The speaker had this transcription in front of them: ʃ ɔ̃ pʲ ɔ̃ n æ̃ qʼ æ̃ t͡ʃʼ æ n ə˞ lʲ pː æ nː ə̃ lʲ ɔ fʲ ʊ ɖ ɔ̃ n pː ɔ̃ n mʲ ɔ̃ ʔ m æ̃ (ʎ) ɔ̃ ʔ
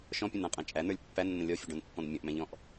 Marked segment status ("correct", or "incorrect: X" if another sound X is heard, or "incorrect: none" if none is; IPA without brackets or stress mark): correct